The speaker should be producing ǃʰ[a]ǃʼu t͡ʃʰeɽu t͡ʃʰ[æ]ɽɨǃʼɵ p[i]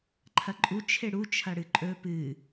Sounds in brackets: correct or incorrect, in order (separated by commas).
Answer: incorrect, incorrect, incorrect